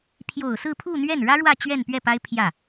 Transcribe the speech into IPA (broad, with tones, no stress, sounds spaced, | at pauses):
pʰ j o˨˩ ʊ̯ s ɹ̩˥˧ pʰ u˥˧ n̪ ɥ ɛ˥˩ n ɻ ä˥ ɻ w ä˥˧ t͡ɕ ɥ ɛ˥˧ n p ɥ ɛ˥˩ p a˥ ɪ̯ pʰ j ä˥˩